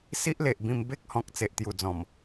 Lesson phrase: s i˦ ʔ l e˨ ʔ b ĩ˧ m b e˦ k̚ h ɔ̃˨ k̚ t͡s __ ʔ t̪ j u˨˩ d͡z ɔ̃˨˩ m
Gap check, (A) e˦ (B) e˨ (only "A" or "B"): B